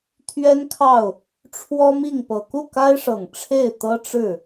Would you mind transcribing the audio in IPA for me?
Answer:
t̪ʰ ɥ ɛ˥ n kʰ ɑ˥˩ ʊ̯ | ʈ͡ʂʰ w ɔ˥ m i˥˩ ŋ p ɤ˨˩ k u˥˩ k a˥ ɪ̯ ʂ ɤ˨˩ ŋ ʈ͡ʂʰ e˥˩ ɪ̯ t̪ ɤ˥ ʈ͡ʂ ɻ̩˥˩

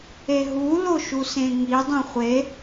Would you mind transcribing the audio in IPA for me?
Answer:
e ɦ u l o ʃ u s ẽ ŋ i dˤ ĩ χʷ e

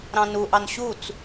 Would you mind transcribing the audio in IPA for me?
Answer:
ɾ ɑ̃ n u ʔ ɑ n ɕ u t͡s

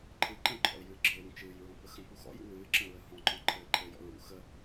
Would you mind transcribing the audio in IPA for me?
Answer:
ǃʰ ɨ ǃ ə̃ ǃʰ ɔ̰ ɪ̯ j ɨː ɡ͡ǁ ɨ ɪ̯ w ũ t͡ʃ ɨː j ɹ ɔ̃ p ə x ə̃ p u x ɔ̰ j ṵ w ɨː ǁ ə̃ ɹ ə h ɔ̃ ǃ ɔ̃ ǃʰ ɘː ǃʰ ɘ j ɔ̰ ɹ ṵ x ə

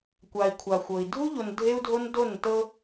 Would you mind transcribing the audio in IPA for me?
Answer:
kʷ a˨ i̯ kʷʰ a˨ xʷ ɤ˨ i̯ dʱ u˦ ʎ o˨ n dʱ e˦ u̯ dʱ o˦ n d o˦˨ n t ɤ˦

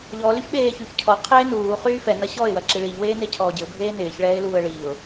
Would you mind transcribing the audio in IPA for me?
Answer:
ʎ ɔ l y ç ɓ eː ç y ç cʰ ɔ qʰ eː n uː χ yː f ɛ n ɐ ɕ ɔ ɪ̯ w ɐ ǁ i ɭ i ʎ w eː n e cʰ ɔː ɟ ɪ ʊ̯ bʱ eː n ɪː ç ɭ ɛː ɪ̯ l uː ə̯ ɭ i ʊ̯

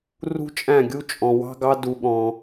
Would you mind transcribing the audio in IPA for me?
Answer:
r ṳ˦ t͡ʃʼ æ̃˦˨ ɡʲ u˦ t͡ʃʼ ɔ̃˧ w ɑ̤˦ ɡ ɑ˦ d u˧ ɠ ɔ̃˧

